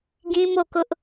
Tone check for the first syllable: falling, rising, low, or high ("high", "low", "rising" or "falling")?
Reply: high